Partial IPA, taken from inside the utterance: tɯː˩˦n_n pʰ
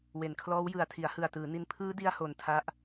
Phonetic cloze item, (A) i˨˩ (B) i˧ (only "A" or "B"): B